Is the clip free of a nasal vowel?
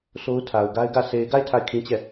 no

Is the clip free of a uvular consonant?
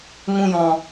yes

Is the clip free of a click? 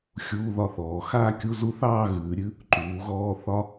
no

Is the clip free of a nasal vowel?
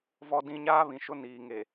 no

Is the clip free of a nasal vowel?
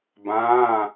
no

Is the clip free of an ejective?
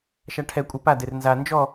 no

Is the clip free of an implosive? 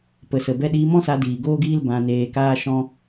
no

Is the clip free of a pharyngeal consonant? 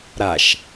yes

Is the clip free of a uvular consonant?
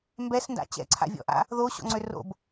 yes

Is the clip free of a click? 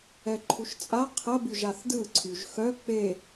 no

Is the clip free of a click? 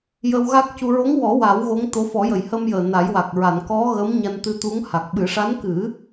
yes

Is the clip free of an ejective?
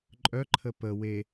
no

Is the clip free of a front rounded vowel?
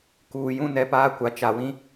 yes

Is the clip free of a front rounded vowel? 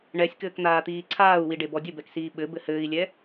yes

